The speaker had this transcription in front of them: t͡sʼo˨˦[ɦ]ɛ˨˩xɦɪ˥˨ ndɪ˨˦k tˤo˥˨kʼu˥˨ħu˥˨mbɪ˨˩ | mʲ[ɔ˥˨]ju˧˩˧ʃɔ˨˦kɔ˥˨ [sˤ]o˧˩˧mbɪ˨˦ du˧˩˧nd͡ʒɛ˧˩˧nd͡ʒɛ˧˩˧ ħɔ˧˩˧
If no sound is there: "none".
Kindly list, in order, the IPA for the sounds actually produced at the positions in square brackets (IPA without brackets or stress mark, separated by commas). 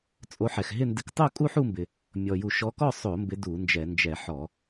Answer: ħ, ɔ˨˩, sˤ